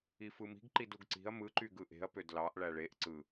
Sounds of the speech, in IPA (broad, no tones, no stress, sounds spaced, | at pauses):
i f ɯ m i̤ ɡ ǃ i d u ɡ ǀ i̤ ɐ̯ m ɯ ǃ y ɡ ɯ ʔ e̤ ɐ̯ p ø d l ɑ ʔ ɭ æ ɭ e ʔ ǀ ɯ